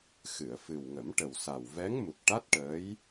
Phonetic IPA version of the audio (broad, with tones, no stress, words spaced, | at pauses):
xɨ˨˩˨ə̯ fɨ˨˩wŋə˨˩˦mʈə˨˩w sa˨˩wvɛ˧˥ŋmu˨˩k̚ ʈa˦˥t̚ʈəː˧˥j